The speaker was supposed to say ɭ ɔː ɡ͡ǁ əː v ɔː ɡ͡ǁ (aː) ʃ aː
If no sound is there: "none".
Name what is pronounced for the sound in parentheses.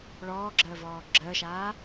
əː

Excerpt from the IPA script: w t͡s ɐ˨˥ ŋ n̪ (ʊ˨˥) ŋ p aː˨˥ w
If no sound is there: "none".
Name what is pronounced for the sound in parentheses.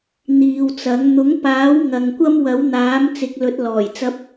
ʊ˨˥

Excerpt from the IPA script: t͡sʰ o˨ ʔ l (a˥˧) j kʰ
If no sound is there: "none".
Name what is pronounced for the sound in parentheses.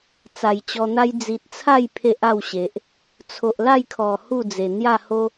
a˥˧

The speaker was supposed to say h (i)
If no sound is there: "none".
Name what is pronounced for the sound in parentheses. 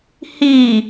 i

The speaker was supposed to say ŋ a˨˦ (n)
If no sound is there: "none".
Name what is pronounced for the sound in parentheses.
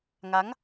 ŋ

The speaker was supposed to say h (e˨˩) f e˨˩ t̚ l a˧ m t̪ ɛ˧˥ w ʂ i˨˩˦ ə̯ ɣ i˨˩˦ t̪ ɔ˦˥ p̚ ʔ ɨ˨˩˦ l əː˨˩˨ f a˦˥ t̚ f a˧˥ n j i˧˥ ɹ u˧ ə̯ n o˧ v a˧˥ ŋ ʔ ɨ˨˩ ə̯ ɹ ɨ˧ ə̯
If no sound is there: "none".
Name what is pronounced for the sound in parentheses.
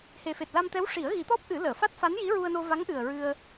e˨˩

